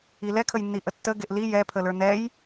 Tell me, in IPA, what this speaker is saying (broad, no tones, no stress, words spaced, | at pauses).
ilɛkʰəjnːi ʔətːə ɡeʔli jɛpʰələ˞ nɛj